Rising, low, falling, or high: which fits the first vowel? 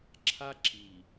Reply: high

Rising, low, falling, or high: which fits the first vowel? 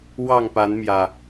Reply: falling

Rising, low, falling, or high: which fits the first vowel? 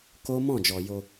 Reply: high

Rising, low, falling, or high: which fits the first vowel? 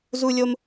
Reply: high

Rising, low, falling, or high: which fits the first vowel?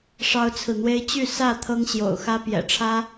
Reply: high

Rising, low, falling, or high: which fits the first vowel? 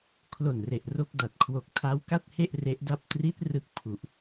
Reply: low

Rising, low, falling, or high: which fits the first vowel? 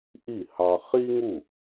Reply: falling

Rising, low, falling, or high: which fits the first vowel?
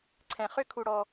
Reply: low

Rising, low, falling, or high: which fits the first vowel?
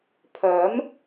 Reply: rising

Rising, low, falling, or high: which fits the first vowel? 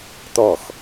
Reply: falling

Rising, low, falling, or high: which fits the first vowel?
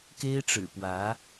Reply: high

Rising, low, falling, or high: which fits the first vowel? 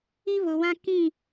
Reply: high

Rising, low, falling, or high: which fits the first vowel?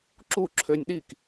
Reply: falling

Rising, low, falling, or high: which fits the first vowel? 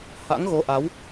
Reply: rising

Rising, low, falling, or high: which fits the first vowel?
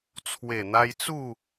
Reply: low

